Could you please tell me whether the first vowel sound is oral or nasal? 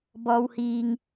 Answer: oral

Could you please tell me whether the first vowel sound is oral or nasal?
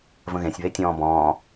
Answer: nasal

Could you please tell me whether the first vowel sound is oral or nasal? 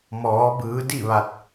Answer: oral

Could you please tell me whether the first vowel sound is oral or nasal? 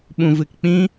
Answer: nasal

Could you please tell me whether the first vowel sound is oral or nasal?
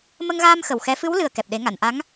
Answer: oral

